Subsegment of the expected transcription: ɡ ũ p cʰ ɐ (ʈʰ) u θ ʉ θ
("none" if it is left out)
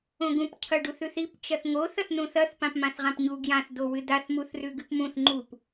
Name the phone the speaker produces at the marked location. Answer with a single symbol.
ɖ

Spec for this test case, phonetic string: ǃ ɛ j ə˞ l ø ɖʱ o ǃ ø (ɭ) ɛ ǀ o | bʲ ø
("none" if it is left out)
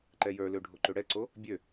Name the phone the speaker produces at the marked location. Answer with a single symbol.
ɽ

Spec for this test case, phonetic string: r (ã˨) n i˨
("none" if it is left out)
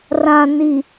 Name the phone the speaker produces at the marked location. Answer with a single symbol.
ã˨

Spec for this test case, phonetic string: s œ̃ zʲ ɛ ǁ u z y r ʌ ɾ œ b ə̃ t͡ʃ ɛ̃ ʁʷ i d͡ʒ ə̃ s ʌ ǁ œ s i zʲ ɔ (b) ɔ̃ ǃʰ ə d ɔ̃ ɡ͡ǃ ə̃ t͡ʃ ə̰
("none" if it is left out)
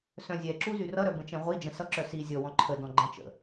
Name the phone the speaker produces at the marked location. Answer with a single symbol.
w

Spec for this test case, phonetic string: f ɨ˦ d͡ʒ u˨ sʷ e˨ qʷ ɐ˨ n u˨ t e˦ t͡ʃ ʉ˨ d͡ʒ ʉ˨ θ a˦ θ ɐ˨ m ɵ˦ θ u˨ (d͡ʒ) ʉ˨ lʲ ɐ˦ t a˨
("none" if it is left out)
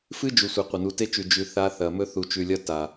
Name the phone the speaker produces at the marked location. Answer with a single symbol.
t͡ʃ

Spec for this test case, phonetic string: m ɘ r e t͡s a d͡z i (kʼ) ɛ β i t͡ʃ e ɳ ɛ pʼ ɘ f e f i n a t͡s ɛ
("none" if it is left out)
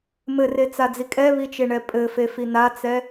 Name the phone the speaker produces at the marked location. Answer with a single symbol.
kʼ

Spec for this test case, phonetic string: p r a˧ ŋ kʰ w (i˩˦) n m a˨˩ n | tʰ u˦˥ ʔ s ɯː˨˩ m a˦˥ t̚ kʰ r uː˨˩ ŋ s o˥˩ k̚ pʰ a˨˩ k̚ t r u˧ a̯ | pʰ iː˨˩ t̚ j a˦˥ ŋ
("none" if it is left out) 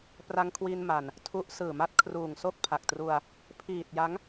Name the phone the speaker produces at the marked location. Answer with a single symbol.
i˧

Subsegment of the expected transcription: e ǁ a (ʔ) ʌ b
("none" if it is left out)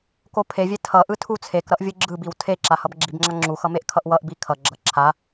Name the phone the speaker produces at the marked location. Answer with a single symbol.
h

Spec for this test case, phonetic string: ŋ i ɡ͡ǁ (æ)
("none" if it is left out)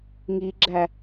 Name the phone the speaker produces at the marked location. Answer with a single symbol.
æ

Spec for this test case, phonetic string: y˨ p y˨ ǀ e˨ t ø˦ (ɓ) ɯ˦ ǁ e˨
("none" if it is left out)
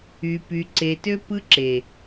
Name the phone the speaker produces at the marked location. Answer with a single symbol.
p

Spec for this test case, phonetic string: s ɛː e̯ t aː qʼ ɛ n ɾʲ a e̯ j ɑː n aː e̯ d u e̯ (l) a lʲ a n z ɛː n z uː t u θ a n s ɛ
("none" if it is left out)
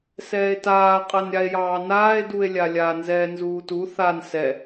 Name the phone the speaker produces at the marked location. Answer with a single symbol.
lʲ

